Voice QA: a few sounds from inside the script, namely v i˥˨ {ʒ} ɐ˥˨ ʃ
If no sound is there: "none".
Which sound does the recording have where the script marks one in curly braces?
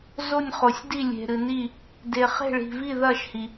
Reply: ð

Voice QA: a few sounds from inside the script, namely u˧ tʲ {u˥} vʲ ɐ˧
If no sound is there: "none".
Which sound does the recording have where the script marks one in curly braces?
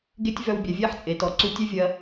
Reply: ø˥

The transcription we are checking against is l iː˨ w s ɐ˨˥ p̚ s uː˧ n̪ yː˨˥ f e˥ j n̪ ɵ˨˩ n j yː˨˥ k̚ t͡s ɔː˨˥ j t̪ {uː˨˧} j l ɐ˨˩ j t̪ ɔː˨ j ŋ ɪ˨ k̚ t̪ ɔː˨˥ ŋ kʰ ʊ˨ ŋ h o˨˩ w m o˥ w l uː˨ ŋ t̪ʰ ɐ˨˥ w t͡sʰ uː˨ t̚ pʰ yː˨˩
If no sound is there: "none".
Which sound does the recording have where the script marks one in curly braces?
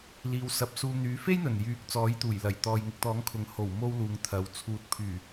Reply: uː˨˩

